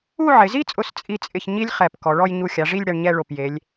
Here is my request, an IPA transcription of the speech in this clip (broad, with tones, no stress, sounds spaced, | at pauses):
u˥˧ ʕ ɪ˩˧ z i˥ t͡sʼ ʊ˧ s t͡sʼ i˥ t͡sʼ ɪ˥˧ ç ɲ i˥ lʲ χ ɛ˧˩ p k ɔ˩˧ ɭ ɔ˥˧ j ɲ u˧˩ xʲ a˩˧ ʐ i˥˧ lʲ ɽ ɛ˧ ɳ ɲ ɛ˥˧ ɭ o˧˩ p j e˩˧ lʲ